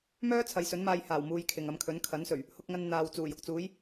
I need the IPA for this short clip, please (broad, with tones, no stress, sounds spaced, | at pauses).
m œː˥ t͡sʰ ɐ˨˧ j s ɵ˨˥ n m aː˧ j h aː˨˩ w m uː˨˧ j kʰ ɪ˨ ŋ ɐ˧ m kʰ ɵ˨˥ n kʰ ɐ˨˥ n s ɵ˨˩ ɥ | h ʊ˧ k̚ ŋ ɐ˧ n n̪ aː˨ w t͡s uː˨˩ j ʊ˨ k̚ t͡s uː˨˥ j